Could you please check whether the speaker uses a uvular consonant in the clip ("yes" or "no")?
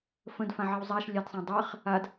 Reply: yes